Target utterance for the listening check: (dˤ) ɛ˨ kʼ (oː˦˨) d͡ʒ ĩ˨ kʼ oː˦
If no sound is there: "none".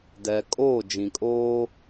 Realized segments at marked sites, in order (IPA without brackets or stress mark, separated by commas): d, oː˦˨